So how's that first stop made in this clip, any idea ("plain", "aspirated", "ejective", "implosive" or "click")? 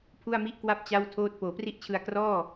aspirated